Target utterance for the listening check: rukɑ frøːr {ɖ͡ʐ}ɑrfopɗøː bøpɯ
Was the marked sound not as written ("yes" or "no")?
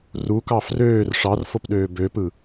yes